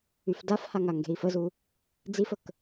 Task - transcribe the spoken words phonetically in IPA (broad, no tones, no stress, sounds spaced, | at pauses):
y f d a f h a ŋ a ŋ ɡ e̤ i̯ f ə z u | d͡z i f ə k